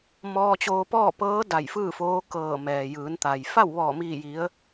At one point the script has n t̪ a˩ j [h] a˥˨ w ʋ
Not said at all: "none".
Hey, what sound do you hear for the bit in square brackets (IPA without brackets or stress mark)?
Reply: f